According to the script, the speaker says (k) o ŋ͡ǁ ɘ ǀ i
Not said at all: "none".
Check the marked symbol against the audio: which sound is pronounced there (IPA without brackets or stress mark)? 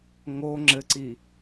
ŋ